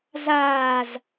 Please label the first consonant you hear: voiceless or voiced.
voiced